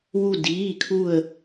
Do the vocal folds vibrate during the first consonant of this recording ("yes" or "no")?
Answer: yes